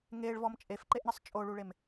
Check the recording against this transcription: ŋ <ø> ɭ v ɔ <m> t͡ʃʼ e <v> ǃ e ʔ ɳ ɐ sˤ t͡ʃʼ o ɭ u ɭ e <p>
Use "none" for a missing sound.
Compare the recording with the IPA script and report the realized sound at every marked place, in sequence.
e, m, f, m

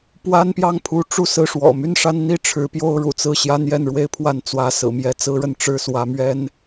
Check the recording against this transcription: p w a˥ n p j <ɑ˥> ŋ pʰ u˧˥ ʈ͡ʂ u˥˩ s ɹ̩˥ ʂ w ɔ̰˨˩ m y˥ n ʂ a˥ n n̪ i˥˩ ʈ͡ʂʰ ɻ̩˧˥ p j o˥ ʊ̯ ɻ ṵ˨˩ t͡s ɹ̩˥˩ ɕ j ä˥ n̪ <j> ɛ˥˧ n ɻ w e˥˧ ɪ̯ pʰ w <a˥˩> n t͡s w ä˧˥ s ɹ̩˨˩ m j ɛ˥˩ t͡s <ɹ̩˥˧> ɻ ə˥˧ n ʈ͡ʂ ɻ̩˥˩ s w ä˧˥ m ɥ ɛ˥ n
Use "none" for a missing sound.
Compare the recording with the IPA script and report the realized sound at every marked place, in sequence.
ɑ˥˩, j, a˥˩, ɹ̩˥

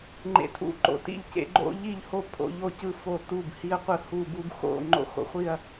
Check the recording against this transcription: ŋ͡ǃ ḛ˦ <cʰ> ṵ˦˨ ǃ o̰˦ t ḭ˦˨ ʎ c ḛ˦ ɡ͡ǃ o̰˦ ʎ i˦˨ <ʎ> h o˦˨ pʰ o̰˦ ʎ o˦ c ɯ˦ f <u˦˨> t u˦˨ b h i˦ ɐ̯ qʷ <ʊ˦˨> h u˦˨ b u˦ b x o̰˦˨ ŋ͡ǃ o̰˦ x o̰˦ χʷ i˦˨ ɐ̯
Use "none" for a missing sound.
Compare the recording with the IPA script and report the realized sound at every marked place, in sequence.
tʰ, ʎ, o˦˨, ɯ˦˨

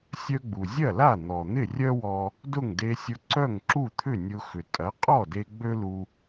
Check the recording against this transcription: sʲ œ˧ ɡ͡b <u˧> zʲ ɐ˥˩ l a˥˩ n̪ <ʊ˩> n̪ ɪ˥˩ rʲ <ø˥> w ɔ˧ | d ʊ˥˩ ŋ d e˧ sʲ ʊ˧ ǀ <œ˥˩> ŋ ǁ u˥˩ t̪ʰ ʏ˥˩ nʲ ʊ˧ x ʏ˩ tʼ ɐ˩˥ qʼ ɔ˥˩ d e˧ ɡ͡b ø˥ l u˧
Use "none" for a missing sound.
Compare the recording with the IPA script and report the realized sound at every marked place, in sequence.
u˩, ɔ˩, œ˥, œ˥˩

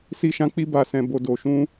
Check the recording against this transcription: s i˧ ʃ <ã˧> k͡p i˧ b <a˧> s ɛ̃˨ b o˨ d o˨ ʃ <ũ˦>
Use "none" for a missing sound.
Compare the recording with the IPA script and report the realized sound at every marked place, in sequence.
ã˧, a˨, ũ˧

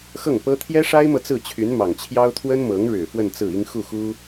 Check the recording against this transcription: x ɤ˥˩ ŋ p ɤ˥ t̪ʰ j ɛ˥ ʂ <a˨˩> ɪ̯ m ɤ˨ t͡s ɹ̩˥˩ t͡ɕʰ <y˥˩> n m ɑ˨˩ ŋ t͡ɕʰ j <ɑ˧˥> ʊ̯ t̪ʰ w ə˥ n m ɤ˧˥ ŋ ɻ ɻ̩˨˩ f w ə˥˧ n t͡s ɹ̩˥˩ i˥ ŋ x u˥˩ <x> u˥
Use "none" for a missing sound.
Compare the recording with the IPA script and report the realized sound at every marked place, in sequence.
a˥, y˧˥, ɑ˥, x

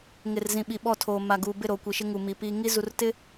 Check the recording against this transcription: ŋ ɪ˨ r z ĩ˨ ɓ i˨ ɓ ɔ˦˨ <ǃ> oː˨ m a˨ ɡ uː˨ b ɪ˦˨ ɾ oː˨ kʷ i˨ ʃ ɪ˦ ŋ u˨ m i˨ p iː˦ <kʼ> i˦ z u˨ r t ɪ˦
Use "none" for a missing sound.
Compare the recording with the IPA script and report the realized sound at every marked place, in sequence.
tʰ, ŋ

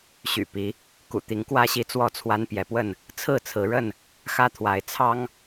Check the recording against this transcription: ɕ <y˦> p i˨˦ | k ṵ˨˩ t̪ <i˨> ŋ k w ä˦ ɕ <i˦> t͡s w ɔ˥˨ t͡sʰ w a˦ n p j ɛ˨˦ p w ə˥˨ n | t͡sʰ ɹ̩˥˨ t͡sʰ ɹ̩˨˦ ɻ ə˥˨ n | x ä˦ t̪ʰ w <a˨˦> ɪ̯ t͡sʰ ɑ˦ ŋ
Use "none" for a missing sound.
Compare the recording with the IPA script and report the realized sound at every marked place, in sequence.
y̰˨˩, i˨˦, i˦, a˨˦

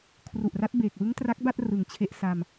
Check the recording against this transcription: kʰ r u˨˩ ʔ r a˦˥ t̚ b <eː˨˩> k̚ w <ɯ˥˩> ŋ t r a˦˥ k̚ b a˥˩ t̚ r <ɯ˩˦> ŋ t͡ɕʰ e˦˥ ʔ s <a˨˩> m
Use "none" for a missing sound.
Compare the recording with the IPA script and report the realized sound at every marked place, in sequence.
eː˨˩, ɯ˦˥, ɯ˩˦, a˧

